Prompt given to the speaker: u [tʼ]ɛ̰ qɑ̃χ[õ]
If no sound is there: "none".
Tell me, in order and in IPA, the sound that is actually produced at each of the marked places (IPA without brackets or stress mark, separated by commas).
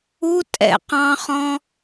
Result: tʼ, ɔ̃